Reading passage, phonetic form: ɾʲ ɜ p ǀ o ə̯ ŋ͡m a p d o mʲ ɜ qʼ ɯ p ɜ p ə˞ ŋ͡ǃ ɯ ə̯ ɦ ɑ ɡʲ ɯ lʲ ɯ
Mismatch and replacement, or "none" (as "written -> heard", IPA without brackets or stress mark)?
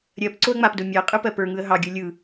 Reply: ŋ͡ǃ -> ŋ